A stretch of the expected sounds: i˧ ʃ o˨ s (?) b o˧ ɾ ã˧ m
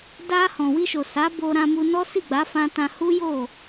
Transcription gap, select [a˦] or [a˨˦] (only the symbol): a˨˦